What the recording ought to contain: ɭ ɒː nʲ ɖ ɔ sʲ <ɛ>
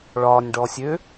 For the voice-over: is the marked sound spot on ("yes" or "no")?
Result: no